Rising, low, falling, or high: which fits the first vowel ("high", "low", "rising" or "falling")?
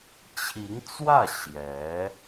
rising